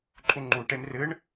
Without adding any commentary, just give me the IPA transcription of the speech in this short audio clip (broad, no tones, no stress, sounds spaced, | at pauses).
ǃʼ u ŋ͡ǃ u ʈ e m r ɨ ɳ